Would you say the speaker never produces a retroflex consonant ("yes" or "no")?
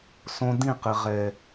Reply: yes